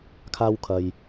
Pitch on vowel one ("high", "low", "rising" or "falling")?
high